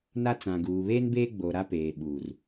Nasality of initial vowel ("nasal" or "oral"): oral